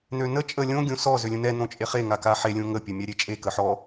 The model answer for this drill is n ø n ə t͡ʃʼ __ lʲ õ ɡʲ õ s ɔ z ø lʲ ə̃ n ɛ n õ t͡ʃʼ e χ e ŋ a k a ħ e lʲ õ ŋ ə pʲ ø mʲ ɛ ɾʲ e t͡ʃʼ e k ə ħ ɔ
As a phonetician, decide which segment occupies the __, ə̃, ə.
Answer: ə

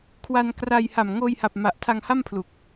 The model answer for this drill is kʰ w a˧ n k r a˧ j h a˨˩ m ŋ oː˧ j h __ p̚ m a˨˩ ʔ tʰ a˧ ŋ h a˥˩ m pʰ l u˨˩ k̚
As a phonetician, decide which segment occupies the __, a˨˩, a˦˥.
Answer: a˨˩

